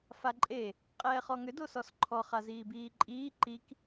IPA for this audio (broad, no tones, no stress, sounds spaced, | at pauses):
f a ǃʼ e | qʼ ɛː χ ɔ ŋ ʏ d o s ɔ s ǃʰ ɔ χ a z iː b iː ǃʼ iː ǃ i k